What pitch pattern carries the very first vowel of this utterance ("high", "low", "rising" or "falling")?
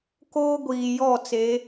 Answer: high